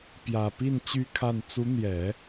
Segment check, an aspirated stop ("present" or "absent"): present